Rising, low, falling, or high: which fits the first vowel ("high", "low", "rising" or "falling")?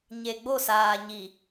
low